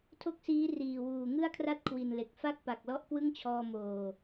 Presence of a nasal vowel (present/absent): absent